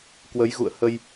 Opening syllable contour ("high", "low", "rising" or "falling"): rising